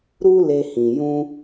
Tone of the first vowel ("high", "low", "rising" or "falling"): high